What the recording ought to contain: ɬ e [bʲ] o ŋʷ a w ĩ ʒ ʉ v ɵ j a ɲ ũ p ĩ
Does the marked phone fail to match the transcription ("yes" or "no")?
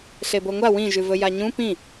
yes